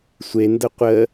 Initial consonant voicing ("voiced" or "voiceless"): voiceless